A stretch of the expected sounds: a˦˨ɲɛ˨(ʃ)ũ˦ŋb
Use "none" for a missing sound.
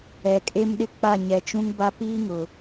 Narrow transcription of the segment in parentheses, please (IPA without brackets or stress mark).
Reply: t͡ʃ